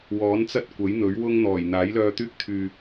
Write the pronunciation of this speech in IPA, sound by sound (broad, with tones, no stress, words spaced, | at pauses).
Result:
wɔː˨˥nt͡sɐ˥t̚kʷɐ˨˥j n̪ɵ˨˥ɥwʊ˥ŋ n̪ɔː˨˩j n̪aː˨˥jlœː˧t̪yː˥k̚ t̪ʰyː˧